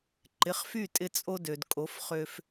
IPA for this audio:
ǃ ɪ˩˥ χ f y˥˩ tʼ ɪ˧ t͡sʼ o˧ d ø˩ d kʼ o˩˥ f χ ø˧ f

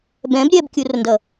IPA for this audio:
b ɛ̃ b ɾʲ ɛ b kʲ u r n d ʌ

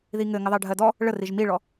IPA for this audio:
ð i ŋ ɘ ŋ ɘ ðˤ ɜ ɖʱ ɜ d ɔ | ɭ ə r i ʒ m i ɭ ɔ

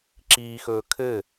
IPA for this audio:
ǁ iː x ɵː kʰ ɘ

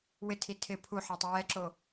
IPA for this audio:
w ɪ tʰ i tʰ ɪ pʰ u ħ a tˤ ɪ w ɛ ǁ o

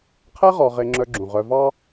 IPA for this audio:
qʰ ɛ˥ ʁ ɔ˨ ʁ e˨ ŋ͡ǁ œ˨ ɡ͡ǁ ũ˩ ʁ œ˨ v ɑ˦

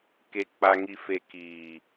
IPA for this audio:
k e˨ k͡p a˨ ŋ i˨ f e˨ k iː˨

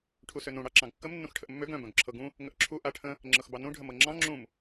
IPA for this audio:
ʈʰ u s ø n ũ ɽ ɑ ǁ ɑ̃ ɡ kː ə m nː ũ x ʈʰ ə ʔ mː ø ɡ œ̃ b œ̃ ɡ ǁʰ ɤ ɡ ũ | ŋ ə ʔ ǁʰ u ʔ a ʈʰ ə̃ | ŋ͡ǁ ɤ x b ɑ n ũ ɖʱ ə m ɤ ŋ͡ǁ ɑ̃ ŋ͡ǁ ũ m

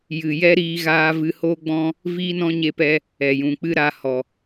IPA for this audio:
j ɨ˨ j ɛ˦ ɾ iː˧ ɣ aː˧ v ɨ˧ h oː˦ ɡ͡b ɔ̃˦ | v iː˦ n ɔ̃˦ ɲ e˧ p ɛ˧ | ɛ˨ j ũ˨ k͡p ɨ˦ ɾ aː˧ h ɔ˨

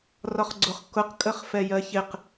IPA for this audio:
r ɒ χ ɡ͡ǀ ʊ χ k ʊ q kʼ ə χ f ɛ j ɜ ç ɪ q

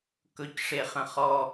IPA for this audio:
k ɵ c ʂ e χ ə̃ χ ɔ

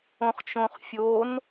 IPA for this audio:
õ χ t͡ʃ õ χ fʲ o n

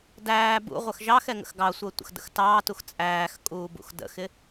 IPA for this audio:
d æː b ṵ ʁʷ ə x ʒ ɑ x ɛ ŋ ə̰ x ɡ ɑ sʷ əː tʷ ə̰ x d ə̰ x t ɑː t u x t͡sʼ æː x kʼ uː b ṵ x d ə̰ x ɪ

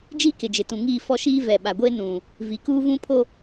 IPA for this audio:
d͡ʒ iː˦ k ɪ˨ d͡ʒ ɪ˨ t ũ˨ ŋ iː˦˨ f ɔ˦ ʃ iː˦ v ɛ˨ ɓ a˨ ɡʷ e˦ n ũ˨ | v i˨ k uː˦ v ũ˦ pʰ o˦

